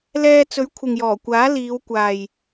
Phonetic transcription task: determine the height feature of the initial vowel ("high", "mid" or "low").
mid